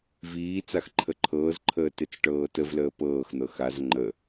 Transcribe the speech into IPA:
v iː t͡s a x ǃʰ ə ǃʰ ɤː z ǃʰ əː t e t͡s ʈ ɤː t ə v l əː p ɤː x n̪ ɤ x a z ŋ͡ǃ ə

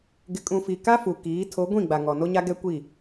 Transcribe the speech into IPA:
ɡ ɪ˨ kʼ ũ˨ f i˨ k a˦ f u˨ k iː˨˦ tʰ o˨˦ ɡʷ ĩ˦˨ ɡ͡b a˨ ŋ ɔ˨ n o˦ ɲ a˦ ɡ ɛ˦ kʷ i˦˨

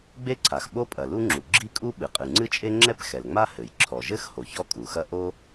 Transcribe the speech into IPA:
ɡ͡b e˥ ǀʰ a˩ x ɓ o˥ pʼ ɐ˩ l u˥ ŋ͡ǁ u˩ ɡ͡ǁ i˥ kʼ u˥ ɓ ɨ˩ qʼ ɨ˩ ŋ͡ǀ ɨ˥ t͡ʃʼ e˥ ŋ͡ǁ ɛ˥ p x ɛ˩ l ŋ͡m a˥ h ɘ˩ j ǁʰ ɔ˩ ʒ ɘ˥ x h o˩ ç ɔ˥ kʼ u˩ x ɐ˥ ʔ o˥

